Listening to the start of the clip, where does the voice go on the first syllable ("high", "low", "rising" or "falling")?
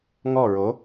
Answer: falling